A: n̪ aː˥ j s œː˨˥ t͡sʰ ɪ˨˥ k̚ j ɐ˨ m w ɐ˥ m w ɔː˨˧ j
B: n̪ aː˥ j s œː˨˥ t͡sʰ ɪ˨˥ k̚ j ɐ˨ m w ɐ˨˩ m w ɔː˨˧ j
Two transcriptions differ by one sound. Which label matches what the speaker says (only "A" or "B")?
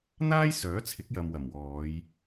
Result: B